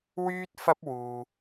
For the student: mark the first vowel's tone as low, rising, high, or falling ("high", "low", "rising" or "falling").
high